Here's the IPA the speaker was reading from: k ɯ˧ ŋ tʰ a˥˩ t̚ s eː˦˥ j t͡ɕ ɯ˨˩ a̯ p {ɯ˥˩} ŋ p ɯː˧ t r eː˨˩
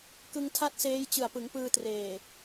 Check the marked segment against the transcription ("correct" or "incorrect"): incorrect